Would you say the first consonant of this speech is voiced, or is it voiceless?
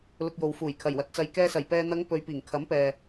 voiced